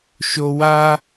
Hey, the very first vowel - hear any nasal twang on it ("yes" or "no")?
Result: no